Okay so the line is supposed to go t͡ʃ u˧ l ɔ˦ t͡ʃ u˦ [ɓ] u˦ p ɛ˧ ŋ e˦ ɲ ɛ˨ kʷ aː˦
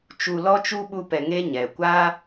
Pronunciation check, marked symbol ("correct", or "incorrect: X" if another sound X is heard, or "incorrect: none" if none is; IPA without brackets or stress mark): correct